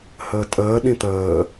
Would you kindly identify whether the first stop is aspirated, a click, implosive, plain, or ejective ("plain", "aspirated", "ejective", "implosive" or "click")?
ejective